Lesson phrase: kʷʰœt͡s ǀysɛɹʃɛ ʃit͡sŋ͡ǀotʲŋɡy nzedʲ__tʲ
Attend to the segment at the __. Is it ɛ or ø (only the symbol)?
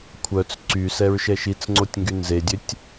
ø